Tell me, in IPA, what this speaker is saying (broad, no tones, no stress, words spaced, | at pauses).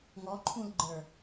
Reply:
ŋɔǃʰũlɡ͡ǃə˞